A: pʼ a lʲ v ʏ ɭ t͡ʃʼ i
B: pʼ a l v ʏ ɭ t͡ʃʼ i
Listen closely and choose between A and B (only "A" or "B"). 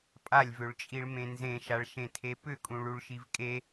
A